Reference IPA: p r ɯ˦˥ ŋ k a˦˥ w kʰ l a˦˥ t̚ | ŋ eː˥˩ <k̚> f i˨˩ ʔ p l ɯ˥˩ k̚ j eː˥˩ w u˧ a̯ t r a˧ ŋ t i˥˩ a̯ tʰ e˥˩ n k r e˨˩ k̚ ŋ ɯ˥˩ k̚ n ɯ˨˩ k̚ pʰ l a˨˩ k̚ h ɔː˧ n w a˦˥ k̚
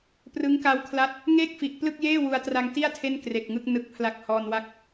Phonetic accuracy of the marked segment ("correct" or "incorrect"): correct